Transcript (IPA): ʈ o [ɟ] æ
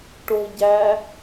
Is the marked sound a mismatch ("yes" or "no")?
no